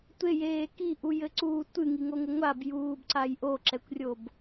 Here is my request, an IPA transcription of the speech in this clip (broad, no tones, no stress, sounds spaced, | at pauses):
tʷ e j eː k i ʔ u j ɘ ǀ uː tʷ ɨ ŋ i ŋ o ŋ ɘ ŋʷ a b j uː b ǀ a j ʔ o ǁ ɛ kʷ rʲ o b